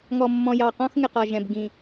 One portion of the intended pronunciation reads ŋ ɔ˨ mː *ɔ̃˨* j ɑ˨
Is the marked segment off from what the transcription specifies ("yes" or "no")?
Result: no